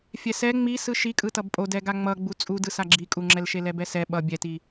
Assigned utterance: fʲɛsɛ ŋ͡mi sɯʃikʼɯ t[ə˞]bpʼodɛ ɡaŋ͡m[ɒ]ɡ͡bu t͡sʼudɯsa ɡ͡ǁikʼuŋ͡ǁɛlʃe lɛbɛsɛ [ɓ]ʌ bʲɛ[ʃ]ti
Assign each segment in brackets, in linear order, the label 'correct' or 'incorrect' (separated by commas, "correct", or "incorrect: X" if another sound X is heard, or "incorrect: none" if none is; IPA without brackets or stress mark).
incorrect: ʌ, incorrect: ʌ, correct, incorrect: none